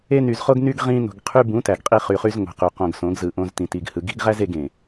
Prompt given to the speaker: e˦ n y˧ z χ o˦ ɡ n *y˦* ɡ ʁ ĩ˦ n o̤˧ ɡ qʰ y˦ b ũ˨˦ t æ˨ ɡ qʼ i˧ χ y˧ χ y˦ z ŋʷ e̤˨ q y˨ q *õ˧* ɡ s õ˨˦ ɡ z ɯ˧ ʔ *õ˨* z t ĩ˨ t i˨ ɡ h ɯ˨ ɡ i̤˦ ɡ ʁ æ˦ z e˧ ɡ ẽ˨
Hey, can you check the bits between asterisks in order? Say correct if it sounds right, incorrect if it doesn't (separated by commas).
correct, correct, incorrect